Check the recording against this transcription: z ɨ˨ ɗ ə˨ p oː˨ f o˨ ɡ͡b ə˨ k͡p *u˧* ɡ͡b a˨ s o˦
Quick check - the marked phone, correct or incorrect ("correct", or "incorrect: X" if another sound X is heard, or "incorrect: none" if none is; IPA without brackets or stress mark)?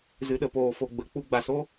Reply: correct